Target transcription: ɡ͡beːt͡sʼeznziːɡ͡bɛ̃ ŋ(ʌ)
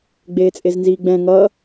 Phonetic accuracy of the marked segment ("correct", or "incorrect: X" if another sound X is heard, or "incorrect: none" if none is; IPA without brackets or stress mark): correct